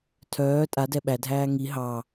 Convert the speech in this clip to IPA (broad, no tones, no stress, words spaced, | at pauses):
tʰœː tʼadɛ ɓædʱæː ŋi ɦɑ